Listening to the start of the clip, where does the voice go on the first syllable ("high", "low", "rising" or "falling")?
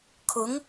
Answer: rising